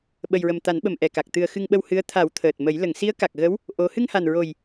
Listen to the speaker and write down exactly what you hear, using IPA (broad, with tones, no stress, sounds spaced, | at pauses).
ɓ ə˨˩ j ɹ ə˨˩ m t̪ a˨˩˦ n ɓ ə˨˩ m ʔ ɛ˨˩ k a˨˩ k̚ t̪ ɨ˨˩ ə̯ x ɨ˧ ŋ ɓ ə˧ w h ɨ˧˥ ə̯ t̪ʰ a˨˩˦ w t̪ʰ əː˨˩ t̚ m ə˨˩˦ j l ə˨˩˨ ŋ s i˧˥ ə̯ k a˨˩ k̚ ɣ ə˧˥ w | ʔ o˧˥ h ɨ˧ ŋ h a˨˩ n ɹ o˨˩ j